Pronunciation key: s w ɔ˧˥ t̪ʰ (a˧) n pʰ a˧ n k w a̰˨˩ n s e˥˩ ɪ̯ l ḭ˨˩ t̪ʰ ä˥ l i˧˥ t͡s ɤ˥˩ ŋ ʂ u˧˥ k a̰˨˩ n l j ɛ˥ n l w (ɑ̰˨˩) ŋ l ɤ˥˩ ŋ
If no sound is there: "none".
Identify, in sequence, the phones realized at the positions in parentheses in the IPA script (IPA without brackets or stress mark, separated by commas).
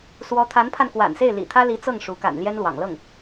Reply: a˧˥, ɑ̰˨˩